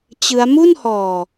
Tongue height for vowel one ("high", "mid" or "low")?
high